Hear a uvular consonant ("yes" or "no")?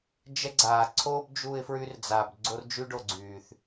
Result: no